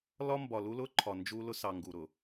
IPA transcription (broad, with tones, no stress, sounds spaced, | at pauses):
l ɒ˦ m b ɒ˨ l u˦ l ʊ˦ ǃʰ ɒ˨ n d͡ʒ u˦ l ʊ˦ s ɑ˨ ŋ ɡ u˨ ɾ ʊ˨